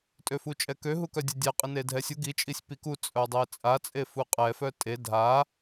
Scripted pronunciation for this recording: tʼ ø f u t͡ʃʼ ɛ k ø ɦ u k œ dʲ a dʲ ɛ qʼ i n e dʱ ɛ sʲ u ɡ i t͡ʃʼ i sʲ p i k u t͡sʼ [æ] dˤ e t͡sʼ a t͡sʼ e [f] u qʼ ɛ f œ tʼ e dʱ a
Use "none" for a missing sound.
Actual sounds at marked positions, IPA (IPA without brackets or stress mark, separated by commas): œ, f